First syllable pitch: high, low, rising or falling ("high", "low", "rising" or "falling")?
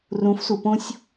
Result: rising